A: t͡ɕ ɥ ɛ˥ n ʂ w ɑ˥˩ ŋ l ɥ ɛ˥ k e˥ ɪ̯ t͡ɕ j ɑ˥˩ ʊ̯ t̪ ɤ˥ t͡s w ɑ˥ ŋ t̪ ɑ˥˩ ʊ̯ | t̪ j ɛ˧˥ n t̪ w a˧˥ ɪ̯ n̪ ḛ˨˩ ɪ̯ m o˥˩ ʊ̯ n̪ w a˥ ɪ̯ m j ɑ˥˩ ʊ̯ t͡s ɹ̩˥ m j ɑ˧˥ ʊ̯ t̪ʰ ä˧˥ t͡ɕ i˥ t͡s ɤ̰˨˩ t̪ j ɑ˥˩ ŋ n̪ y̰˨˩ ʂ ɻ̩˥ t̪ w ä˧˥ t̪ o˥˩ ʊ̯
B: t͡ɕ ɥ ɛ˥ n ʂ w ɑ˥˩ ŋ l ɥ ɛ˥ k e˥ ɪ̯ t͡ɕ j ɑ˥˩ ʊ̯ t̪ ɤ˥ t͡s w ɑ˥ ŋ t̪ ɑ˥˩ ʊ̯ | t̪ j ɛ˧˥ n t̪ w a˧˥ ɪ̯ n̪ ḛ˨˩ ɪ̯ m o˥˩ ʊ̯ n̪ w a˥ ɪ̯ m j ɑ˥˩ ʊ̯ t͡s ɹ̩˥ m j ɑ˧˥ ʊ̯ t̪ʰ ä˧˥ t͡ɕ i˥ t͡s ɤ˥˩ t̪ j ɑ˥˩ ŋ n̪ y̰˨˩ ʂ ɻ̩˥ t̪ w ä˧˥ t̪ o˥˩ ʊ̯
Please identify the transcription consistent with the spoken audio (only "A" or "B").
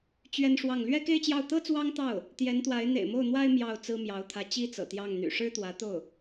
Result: A